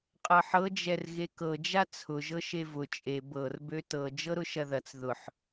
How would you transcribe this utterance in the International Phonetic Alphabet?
qʼ ɤ ħ ɤ d͡ʒ ɛ r ɣ e k ɤ d͡ʒ a t͡sʰ ʊ ʒ ɤ ʃ e v ʊ t͡ʃʼ e b ɤ r b ø t ɤ d͡ʒ ɤ ɾ ʊ ʃ ɐ ð ɐ t͡s ð ʊ ħ

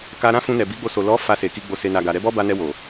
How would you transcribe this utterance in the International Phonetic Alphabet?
k a˧ ɾ ã˦ f ũ˧ n ɛ˨ b i˨˦ ɡ͡b o˧ s o˨ l ɔ˨˦ f a˧ s e˨ k i˧ ɡ͡b o˨ s e˨ n a˨ ɡ a˨ ɾ ɛ˧ b ɔ˦ b a˧ n ɛ˧ w o˨

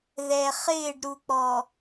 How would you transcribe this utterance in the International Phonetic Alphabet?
ð ɛ˨ χ ɪː˦˨ ɖ ɾ u˨ k͡p ɔ˨

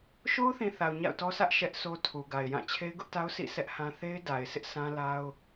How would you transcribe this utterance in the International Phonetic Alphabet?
ʃ o˦ ʊ̯ θ ĩ˨ θ a˨ ʊ̯ ɲ a̰˦˨ ʊ̯ t ɔ˦ sʰ ä˦ ʔ ʃ ɛ˦ ʔ s o˦ tʰ u˨ ɡ a˨ ɪ̯ j ã˦˨ t͡ɕʰ e˦ ɪ̯ ɡ ʊ˦ ʔ t a˦ ʊ̯ sʰ ḭ˦˨ sʰ ɛ˦ ʔ h ã˦ θ e˦ ɪ̯ d a˨ ɪ̯ sʰ ɪ˦ ʔ s ã˦ l a˦ ʊ̯

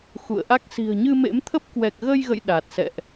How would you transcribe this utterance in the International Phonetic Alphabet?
x ṵ˧˨ ə̯ ʔ a˦˥ k̚ s i̤˨˩ ə̯ ɲ ɨ˧ m ḛ˧˥ m t̪ʰ ə˦˥ p̚ k w ɛ˨˩ k̚ ɣ ə˧ j ɣ ə̰˧˨ j ɗ a˨˩ t̚ s ɛ̰˧˨ ʔ

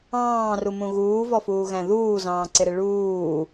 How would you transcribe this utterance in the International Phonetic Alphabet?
ɑ̃ː r u m ũ ɣ uː v ɔ f uː ɣ æ̃ ð uː z ɑ̃ː ǀ ɪ ɾ ɪ ɭ uː

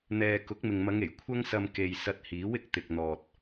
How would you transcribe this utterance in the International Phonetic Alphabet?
n̪ ɛː˧ k ʊ˨˥ k̚ m ɪ˨ ŋ m ɐ˨˧ ŋ e˨˩ j kʷʰ ɐ˥ ŋ s ɐ˧ m k e˨ j s ɐ˧ t̚ h iː˨˥ w ɪ˨ k̚ t̪ ɪ˨ k̚ n̪ ɔː˨ t̚

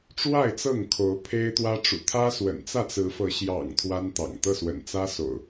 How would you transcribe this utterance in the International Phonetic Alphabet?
ʈ͡ʂ w a˥˨ ɪ̯ t͡s ɤ˥˨ ŋ kʰ o˨˦ ʊ̯ pʰ e˦ ɪ̯ t̪ w ä˦ ʈ͡ʂ ṵ˨˩ t̪ʰ ä˦ s w ə̰˨˩ n t͡s ä˥˨ t͡s ɹ̩˨˦ f ɤ˨˦ ɕ j ɑ̰˨˩ ŋ t̪ʰ w a˦ n t̪ ɑ̰˨˩ ŋ t̪ ɤ˥˨ s w ə̰˨˩ n t͡s ä˦ s o̰˨˩ ʊ̯

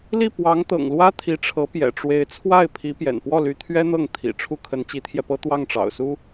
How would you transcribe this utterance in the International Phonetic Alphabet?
l i˥˩ p w ɑ˧˥ ŋ t̪ ɤ̰˨˩ ŋ l w ä˥ t̪ʰ i˧˥ ʈ͡ʂʰ ɤ˧˥ p j ɛ̰˨˩ ʈ͡ʂ w e˧˥ ɪ̯ t͡sʰ w a˥˩ ɪ̯ pʰ i˧˥ p j ɛ̰˨˩ n p w ɔ˥˩ l y˧˥ t̪ʰ ɥ ɛ˥ n̪ ɤ˥˩ ŋ t̪ʰ ḭ˨˩ ʈ͡ʂʰ u˥˩ kʰ ə˧˥ n t͡ɕ i˧˥ t̪ʰ j ɛ˧ p ɤ˥ t̪ w ɑ˥˩ ŋ ʈ͡ʂ ɑ̰˨˩ ʊ̯ s u˥

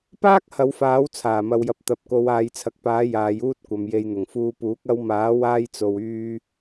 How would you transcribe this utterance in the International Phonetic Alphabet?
p aː˥ k̚ h ɐ˨˧ w f aː˨˥ w t͡sʰ aː˨˩ m ɐ˨ w j ɐ˨ p̚ t̪ ɐ˨ p̚ k o˨˧ w aː˨ j t͡sʰ ɐ˨ k̚ p aː˨˥ j aː˨˧ j uː˥ t̚ kʷ ɐ˨ m j e˨ j n̪ ʊ˨˩ ŋ f uː˨˧ p uː˨˥ k̚ ɐ˧ w m aː˨˥ w aː˧ j t͡s o˨ w yː˧

